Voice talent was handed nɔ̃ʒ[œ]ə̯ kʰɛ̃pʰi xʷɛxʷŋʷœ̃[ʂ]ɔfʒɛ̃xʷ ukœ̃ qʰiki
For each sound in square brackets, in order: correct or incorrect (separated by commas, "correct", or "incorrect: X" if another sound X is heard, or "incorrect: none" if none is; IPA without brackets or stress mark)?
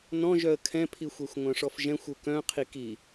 correct, correct